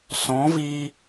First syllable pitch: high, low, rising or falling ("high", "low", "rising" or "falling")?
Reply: rising